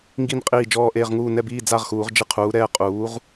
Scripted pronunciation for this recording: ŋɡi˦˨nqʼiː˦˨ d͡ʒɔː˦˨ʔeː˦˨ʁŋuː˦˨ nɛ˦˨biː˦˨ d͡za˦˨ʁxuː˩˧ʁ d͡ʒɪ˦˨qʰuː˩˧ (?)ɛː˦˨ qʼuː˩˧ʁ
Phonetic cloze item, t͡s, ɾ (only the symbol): ɾ